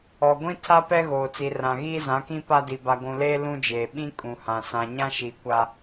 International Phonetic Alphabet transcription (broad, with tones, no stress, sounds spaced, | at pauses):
ɔ˨ ɡʷ ĩ˦ tʰ a˦ p ɛ˦ ɣ oː˨ t͡s i˨ r ã˨ ɣ iː˦ z ã˨˦ k ĩ˦ p a˦ d i˨ b a˨ ɡʷ ũ˨ l eː˦ l ũ˦ d͡ʒ eː˨ ɓ ĩ˦ kʼ ũ˨ h ã˨ s ã˨ ɲ ã˦ ʃ i˨ kʷ a˦